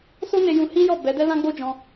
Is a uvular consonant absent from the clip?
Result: yes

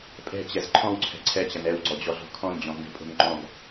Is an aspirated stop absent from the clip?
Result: no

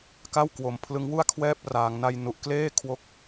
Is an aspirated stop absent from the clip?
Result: no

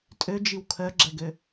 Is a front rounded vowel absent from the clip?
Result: no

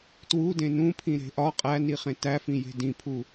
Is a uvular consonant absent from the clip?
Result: no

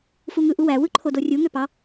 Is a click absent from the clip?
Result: no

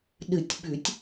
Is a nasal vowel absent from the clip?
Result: yes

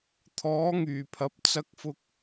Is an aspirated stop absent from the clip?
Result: no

